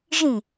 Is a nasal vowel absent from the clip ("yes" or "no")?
no